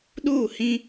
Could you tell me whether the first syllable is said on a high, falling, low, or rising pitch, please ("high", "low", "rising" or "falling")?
falling